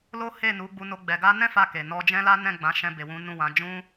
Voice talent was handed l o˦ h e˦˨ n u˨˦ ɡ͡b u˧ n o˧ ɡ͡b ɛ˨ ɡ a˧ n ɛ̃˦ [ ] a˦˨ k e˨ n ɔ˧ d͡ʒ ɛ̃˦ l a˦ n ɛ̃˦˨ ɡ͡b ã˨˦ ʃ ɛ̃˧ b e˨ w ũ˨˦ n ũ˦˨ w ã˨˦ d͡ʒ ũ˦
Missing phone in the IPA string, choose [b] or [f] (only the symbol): f